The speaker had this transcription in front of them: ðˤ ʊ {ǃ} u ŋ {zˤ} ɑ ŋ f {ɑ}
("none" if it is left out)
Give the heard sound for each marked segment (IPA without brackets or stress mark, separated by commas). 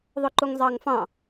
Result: ǃ, zˤ, ɑ̃